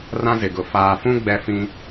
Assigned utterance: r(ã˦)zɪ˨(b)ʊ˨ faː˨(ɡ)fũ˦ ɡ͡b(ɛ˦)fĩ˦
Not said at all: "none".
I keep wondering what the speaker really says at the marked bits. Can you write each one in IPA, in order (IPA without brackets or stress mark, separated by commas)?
ã˦, ɡ, none, ɛ˦